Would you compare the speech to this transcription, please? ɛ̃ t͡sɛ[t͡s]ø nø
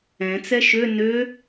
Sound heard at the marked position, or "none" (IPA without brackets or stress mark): ʃ